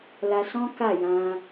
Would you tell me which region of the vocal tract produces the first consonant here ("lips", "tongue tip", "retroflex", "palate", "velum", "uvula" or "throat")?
tongue tip